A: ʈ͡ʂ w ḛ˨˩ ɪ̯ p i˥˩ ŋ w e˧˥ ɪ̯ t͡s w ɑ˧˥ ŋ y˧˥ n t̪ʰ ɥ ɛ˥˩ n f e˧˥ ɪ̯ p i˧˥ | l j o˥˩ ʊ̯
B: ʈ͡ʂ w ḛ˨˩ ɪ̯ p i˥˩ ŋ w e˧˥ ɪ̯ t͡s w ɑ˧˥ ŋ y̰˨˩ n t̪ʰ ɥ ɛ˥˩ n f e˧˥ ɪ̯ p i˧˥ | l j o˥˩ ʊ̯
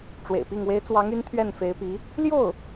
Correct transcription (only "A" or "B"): A